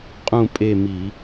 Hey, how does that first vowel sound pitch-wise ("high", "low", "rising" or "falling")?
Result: falling